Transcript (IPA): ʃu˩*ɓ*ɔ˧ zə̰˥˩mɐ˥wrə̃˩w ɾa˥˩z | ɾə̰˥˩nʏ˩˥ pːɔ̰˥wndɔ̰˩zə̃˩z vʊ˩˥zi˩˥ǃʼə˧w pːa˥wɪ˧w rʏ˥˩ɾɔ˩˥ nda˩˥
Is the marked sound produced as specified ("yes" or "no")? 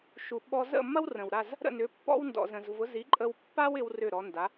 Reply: yes